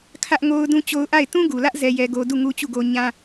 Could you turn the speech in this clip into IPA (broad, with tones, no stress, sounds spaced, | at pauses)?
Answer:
kʰ ä˦ ʔ ŋ o˦ ʊ̯ d ũ˦ t͡ɕ o˦ ʊ̯ ʔ a˦˨ ɪ̯ t ũ˦ ɡ u˨ l ä˦ ʔ z ɛ˦ j ɛ˦ ɡ o˦ d u˦˨ ŋ u˦ t͡ɕ u˦˨ ɡ o˦ ɲ ã˦